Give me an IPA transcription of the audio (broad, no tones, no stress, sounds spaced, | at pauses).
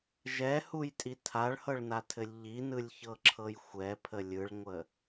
ʒ ɛ h u j tʼ i tʰ a ɭ h ɤ ɭ n a tʰ ɘ lʲ ʎ i n ɯ lʲ ç ɤ ǁʰ ɤ j xʷ ɛ pʰ ə lʲ ɯ ɭ ŋʷ ə